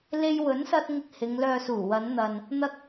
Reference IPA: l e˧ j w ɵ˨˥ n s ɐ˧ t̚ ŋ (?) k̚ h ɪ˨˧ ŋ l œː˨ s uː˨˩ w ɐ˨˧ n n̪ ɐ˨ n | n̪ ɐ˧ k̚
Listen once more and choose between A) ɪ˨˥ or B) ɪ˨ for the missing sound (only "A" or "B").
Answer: B